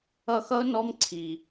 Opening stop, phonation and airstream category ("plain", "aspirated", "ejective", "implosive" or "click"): click